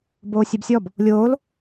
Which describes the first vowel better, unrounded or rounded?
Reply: rounded